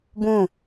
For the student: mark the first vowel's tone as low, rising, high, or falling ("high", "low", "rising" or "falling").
falling